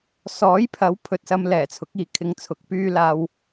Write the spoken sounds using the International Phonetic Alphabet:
s ɔː˨˥ j pʰ ɐ˨˥ w pʰ ɵ˨ t̚ s ɐ˧ m l ɛː˨˩ t͡sʰ ʊ˨˥ k̚ iː˨ kʰ ɪ˨˧ ŋ t͡sʰ ʊ˨˥ k̚ p yː˥ l aː˧ w

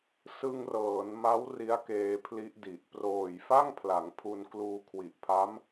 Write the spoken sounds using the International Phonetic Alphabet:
s ɯ˧ ŋ r ɤː˩˦ n m a˦˥ w r i˦˥ a̯ k eː˧ pʰ l i˦˥ ʔ d i˨˩ ʔ p r oː˨˩ j f a˥˩ ŋ pʰ l a˩˦ ŋ pʰ u˧ n k l uː˧ kʰ w i˨˩ ʔ pʰ a˦˥ m

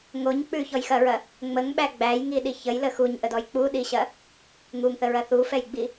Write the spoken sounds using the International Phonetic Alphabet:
ŋ o ɲ k͡p ʉ ç ɔ j x ɐ ɹ ɐ | ŋ͡m ə ŋ ɓ æ ɡ͡b æ j ŋ i ɗ i ç ə j l ə x u ɲ ʔ ə d ɔ j k͡p u ɗ i ɕ ɐ | ŋ u ŋ θ ə ɹ ɐ θ u f ɛ j ɡ͡b i

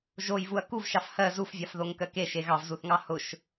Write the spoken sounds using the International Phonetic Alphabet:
ʒ o j v u ɐ̯ k u v ʃ ɑ f h ɜ z u f vʲ ɑ f ð o ŋ k ɜ k e ʃ e ɣ ɑ v z u θ ŋ ɑ h ʊ ʃ

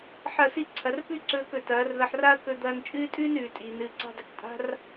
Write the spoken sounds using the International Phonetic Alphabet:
ħ ɐ˦˨ s i˦ ǀʰ ɐ˧ r p ʉ˦ ǀ ɵː˧ k ɵ˨ t ɐː˨˦ r ð ɐ˧ ħ r a˦ ɐ̯ k ɵ˧ d̪ ɐː˧ n t͡ʃʼ ɨː˦ tʼ ʉː˦ n ʉː˨ tʼ iː˨ n ɨː˧ ǀ a̤˦ dˤ ɨ˨ k tʼ a̤˦ r

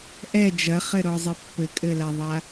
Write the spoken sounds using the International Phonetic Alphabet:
ʔ ɛ d͡ʒ ɐ χ ɘ ɾ ɔ zˤ ɘ pː ɘ kʼ ɘ l a ðˤ a

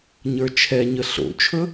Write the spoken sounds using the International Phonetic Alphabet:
ɲ ə˞ t͡ʃʰ ɛ ɲ ə ɬ o̰ t͡ʃʰ ɵ

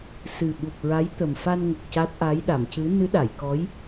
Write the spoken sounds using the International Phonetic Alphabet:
s ɨ˨˩ ɓ u˨˩ p̚ ɹ a˧˥ j t̪ ə˨˩ m f a˧ n ŋ ə˨˩ k̚ c a˦˥ t̚ ʔ a˧˥ j ɗ a˨˩˨ m c ɨ˧˥ n ɨ˧˥ ɗ a˨˩˨ j k ɔ˧˥ j

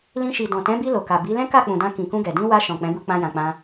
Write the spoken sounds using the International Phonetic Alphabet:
l ĩ˧ ʃ i˨ d ɔ̃˨ t ɛ̃˨˦ b i˧ l o˨ k a˨ b i˨˦ l ɛ̃˦ k a˦˨ k͡p ũ˨ d ã˧ k ĩ˨ k ũ˧ ɡ ɛ˨ d ĩ˧ w a˧ ʃ ɔ̃˨ k͡p ɛ̃˨˦ b u˧ k͡p ã˧ j ã˨ k͡p ã˧

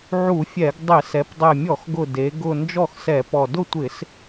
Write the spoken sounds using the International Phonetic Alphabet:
ʕ u˧˩˧ fʲ ɛ˧˩˧ ɡ dˤ ɪ˧˩˧ s ɛ˩˧ p dˤ ɛ˨˩ mʲ ɔ˧˩˧ x ɡ ʊ˨˩ d e˩˧ ɡ ʊ˨˩ n d͡ʒ ɔ˥˨ x s ɛ˧˩˧ p ɔ˨˩ d ʊ˥˨ tʷ ɪ˧˩˧ s

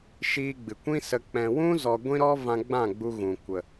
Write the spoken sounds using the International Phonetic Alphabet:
ʃ iː˧ ɡ͡b ɨ˨ kʷ ĩ˦ s ə˧ k͡p ɛ̃˨ w ũ˦ z ɔ˧ ɡʷ ĩ˦ ɾ ɔ˦ v ã˧ ɡ͡b ã˦˨ ɡ͡b u˧ ɣ ũ˨ kʷ ə˨

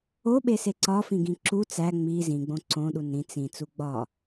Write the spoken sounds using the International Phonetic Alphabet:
o ɓ e s e ǀ ɒ f ĩ ɡ ĩ ǁ u t͡s æ ŋ͡m i z ĩ ɡ͡b õ ǀ õ ɗ u n ɾ ĩ t͡s ĩ t͡s u ɡ͡b ɒ

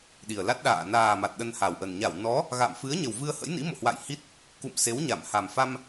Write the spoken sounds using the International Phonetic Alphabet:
ɗ i˨˩ ə̯ l a˦˥ t̚ ɗ a̰ː˧˨ n aː˨˩ m a˨˩ t̚ ɗ ə˧ n h a˨˩ w ʔ ə˨˩ n ɲ a˧˩ w n ɔ˨˦ | ɣ a̰˧˨ m f ɨ˨˦ ə̯ ɲ ə˨˩ w v ɨ˧ ə̯ h ə̰˧˥ j n ḭ˧˥ m o̰˧˨ h w a̰˧˨ j h i˦˥ t̚ | k ṵ˧˨ m s e˨˦ w ɲ a˧˩ m h a˨˩ m f a˧ m

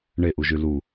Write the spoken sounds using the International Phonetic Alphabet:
ɳ e ʔ u ʒ y l u

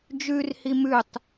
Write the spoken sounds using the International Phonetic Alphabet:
d͡ʒ ʉ r h i m ʉ tˤ

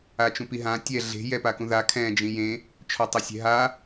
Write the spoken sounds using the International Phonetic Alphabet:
a t͡ʃ ũ p i ɦ ã tʲ ɛ ɮ e̤ j ɛ p a k ũ ð a kʰ ɛ̃ d͡ʒ ĩ j ẽ | t͡ʃʰ ɔ tˤ ɘ sʲ ɛ̤ ɦ a

